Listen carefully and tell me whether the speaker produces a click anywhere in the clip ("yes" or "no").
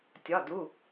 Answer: no